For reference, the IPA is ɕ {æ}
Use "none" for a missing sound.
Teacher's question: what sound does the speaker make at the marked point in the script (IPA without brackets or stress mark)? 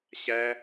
æ